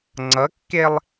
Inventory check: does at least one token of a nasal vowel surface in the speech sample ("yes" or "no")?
no